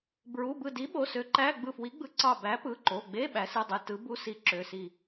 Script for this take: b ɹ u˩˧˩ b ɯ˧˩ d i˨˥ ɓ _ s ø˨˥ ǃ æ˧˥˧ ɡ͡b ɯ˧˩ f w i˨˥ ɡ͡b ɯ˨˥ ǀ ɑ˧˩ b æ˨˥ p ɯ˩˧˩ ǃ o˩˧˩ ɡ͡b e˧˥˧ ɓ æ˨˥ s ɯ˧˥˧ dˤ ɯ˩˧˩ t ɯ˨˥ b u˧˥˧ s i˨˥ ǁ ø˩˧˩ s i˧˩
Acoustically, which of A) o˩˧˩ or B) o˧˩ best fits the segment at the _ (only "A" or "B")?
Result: A